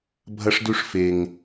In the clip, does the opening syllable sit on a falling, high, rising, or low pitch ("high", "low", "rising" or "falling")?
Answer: high